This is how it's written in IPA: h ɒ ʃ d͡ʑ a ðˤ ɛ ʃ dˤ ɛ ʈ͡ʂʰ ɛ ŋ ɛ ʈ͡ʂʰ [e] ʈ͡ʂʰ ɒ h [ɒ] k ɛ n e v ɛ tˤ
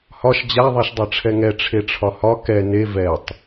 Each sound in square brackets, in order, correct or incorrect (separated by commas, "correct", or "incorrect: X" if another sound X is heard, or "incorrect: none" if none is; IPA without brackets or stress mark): correct, correct